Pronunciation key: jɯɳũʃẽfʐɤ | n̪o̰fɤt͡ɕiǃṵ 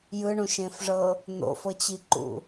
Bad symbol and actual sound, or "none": none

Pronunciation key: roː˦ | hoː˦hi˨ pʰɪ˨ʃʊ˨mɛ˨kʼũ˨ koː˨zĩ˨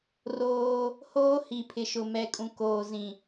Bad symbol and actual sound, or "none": none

